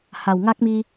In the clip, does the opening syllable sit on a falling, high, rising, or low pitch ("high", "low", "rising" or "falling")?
low